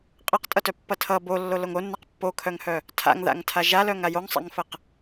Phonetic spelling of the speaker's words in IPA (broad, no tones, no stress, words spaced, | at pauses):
qʼʌqtʼʌtœpːʌ tʰʌ bolːoloŋ onːaq pːokʰœŋhœ | tʰa̰ŋða̰ŋtʰa ʒalœŋa joŋsˤa̰ŋfəq